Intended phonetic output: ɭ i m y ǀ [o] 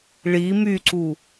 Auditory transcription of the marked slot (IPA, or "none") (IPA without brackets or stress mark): u